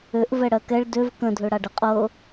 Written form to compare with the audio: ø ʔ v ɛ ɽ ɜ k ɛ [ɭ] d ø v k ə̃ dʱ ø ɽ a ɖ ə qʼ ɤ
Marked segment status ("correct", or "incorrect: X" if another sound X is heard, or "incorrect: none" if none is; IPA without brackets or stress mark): correct